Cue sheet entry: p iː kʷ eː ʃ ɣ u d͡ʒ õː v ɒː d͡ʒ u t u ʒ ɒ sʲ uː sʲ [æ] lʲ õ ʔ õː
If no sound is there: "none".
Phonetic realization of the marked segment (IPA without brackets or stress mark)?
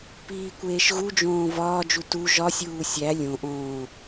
æ